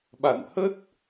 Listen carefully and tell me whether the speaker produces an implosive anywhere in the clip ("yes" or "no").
yes